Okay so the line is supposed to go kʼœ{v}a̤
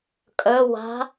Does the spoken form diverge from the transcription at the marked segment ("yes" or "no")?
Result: yes